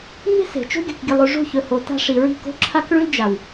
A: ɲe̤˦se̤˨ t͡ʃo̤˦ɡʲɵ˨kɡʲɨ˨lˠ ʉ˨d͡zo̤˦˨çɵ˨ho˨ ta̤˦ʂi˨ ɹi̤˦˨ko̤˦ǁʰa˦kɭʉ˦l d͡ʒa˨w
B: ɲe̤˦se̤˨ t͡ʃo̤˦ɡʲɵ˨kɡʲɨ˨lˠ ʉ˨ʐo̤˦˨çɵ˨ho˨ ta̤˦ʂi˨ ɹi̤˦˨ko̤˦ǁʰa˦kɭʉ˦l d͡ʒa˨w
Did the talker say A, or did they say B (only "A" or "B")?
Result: B